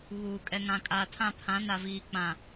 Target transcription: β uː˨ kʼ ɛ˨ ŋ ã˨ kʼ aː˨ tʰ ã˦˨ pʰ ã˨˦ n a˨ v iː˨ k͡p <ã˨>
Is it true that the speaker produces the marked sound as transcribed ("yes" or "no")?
yes